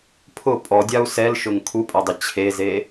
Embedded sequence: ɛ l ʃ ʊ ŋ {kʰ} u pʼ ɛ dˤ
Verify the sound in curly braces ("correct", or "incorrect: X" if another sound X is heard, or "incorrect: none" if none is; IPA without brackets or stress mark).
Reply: correct